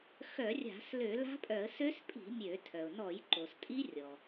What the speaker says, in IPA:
x œ˧˩˧ rʲ a̤˧˩˧ s l ø˧˩˧ l a̤˦˥ pʼ œ˧˩˧ ə̯ s ø˦˥ s pʼ i̤˧˩˧ mʲ ø˧˩˧ tʰ œ˩ ʊ̯ n ɔ˧˩˧ j ǃ o˩ s tʼ i˦˥ rʲ ɔ˩

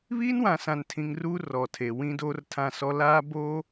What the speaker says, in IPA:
β iː˦ n w ã˨ s ã˨ n tʰ ĩ˨ ŋ r uː˦ r ɔ˨ tʰ e˨ w ĩ˦ d oː˦ r tʰ ã˦˨ s ɔ˦ l aː˦ b oː˦

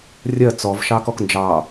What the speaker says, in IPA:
rʲ ɜ t͡s ɔ v ʃ ɑ k ɔ k n d͡ʒ ɑ

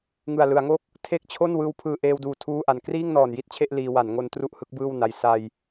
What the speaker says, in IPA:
ŋ ɯ˨˩ a̯ l ɯ˩˦ a̯ ŋ o˥˩ k̚ | tʰ e˥˩ k̚ t͡ɕʰ o˥˩ n w ɯː˧ w pʰ ɯː˨˩ ʔ eː˧ w d uː˨˩ tʰ uː˥˩ ʔ a˨˩ n k r iː˥˩ ŋ n ɔː˨˩ n j i˥˩ t̚ t͡ɕʰ e˥˩ ʔ l iː˧ w a˩˦ n ŋ o˧ n t r u˥˩ ʔ h ɯ˦˥ k̚ b ɯː˥˩ w n a˧ j s a˧ j

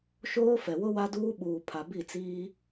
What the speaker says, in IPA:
ʃ oː˦ f ɛ˨ w ʊ˦ w a˦ d uː˦ ɓ uː˨ pʰ a˨ b i˦˨ t͡s iː˦

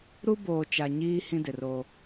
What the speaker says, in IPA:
ɾ u˦ b oː˨ t͡ʃ a˨ ɲ iː˦ h ĩ˦ d ɪ˨ r o˦

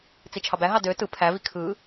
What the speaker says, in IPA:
t͡s i t͡ʃʰ ɑ b æ ɦ ɑ d ø t ɯ pʰ æ v i kʰ ɯ

